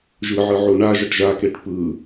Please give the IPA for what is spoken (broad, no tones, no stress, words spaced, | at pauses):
ʒɯʕɯʕu ɳaʒʌʈ ʒakeʈ pɯ